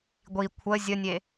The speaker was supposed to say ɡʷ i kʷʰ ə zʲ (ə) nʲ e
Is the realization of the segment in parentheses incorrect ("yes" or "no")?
no